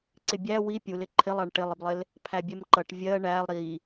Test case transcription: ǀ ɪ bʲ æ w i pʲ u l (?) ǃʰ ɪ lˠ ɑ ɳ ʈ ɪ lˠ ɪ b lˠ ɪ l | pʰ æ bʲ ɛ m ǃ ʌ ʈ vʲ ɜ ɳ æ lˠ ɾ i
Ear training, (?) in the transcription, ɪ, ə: ɪ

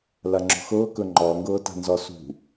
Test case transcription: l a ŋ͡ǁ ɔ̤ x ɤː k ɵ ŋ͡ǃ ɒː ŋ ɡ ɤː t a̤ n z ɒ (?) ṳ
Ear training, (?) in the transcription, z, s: s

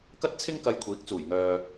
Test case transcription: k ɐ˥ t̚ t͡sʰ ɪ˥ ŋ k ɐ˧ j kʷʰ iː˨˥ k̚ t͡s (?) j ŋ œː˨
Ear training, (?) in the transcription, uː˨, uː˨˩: uː˨˩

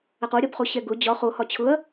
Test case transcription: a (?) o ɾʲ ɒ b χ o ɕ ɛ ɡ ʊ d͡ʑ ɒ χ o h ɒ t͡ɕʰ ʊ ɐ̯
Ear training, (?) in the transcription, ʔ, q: q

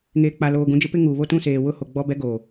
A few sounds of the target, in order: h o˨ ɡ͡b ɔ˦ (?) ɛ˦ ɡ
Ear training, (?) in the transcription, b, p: b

